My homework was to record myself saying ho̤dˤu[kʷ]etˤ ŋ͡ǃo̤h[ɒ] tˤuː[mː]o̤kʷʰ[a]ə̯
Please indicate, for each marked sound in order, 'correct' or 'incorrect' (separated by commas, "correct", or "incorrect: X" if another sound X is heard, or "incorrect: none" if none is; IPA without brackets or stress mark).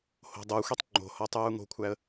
incorrect: xʷ, correct, incorrect: ŋ, incorrect: æ